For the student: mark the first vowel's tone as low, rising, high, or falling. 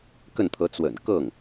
falling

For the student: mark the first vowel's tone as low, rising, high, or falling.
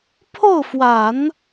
falling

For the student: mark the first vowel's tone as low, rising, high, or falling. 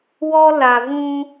high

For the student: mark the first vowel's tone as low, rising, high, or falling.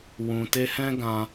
low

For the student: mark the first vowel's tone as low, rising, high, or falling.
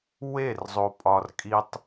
falling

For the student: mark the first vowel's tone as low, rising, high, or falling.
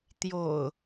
low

